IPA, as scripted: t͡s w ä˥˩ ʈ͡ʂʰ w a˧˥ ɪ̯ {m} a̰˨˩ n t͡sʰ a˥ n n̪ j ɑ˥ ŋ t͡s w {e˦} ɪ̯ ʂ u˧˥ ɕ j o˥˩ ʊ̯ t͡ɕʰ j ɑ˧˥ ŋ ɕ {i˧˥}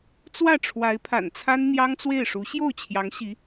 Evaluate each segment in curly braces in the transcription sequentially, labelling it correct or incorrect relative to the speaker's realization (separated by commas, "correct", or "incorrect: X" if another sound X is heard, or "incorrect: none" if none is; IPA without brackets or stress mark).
incorrect: pʰ, incorrect: e˥˩, correct